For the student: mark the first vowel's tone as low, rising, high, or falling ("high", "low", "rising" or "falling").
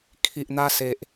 low